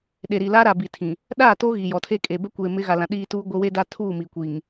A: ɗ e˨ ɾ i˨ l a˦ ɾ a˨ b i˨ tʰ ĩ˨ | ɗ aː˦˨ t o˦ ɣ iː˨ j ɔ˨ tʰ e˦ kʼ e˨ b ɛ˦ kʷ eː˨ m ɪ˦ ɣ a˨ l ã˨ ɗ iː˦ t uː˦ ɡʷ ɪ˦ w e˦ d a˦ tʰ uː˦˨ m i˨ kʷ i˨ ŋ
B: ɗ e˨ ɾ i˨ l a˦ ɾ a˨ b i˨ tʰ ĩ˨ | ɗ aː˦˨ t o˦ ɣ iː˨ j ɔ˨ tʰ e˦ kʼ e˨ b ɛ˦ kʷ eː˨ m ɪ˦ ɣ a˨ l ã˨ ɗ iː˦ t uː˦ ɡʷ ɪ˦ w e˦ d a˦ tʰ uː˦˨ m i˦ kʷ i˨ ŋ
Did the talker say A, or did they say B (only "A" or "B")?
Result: A